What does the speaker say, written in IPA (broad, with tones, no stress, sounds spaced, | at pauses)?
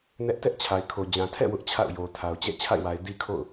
n ɛ˦ ʔ t ɛ˦ ʔ t͡ɕʰ a˨ ɪ̯ kʰ o˨ d͡ʑ ã˨ tʰ ɛ̰˦˨ w ʊ˦ ʔ t͡ɕʰ a̰˦˨ ʊ̯ j o˨ tʰ a˨ ʊ̯ t͡ɕ ɛ̰˦˨ t͡ɕʰ a̰˦˨ ɪ̯ w a˨ ɪ̯ d i˦ kʰ o̰˦˨ ʊ̯